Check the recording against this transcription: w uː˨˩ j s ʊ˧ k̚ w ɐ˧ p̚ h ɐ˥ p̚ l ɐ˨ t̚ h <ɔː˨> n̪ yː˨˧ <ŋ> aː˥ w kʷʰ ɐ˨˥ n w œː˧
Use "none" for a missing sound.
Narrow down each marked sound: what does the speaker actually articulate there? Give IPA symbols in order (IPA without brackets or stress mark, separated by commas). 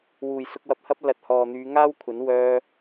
ɔː˨, ŋ